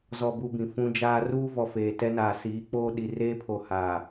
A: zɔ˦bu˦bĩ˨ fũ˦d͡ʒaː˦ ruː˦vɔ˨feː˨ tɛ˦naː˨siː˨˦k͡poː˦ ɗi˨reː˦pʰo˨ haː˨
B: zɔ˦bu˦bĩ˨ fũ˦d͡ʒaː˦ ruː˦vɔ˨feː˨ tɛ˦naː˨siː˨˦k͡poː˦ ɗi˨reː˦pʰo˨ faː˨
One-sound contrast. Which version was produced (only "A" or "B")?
A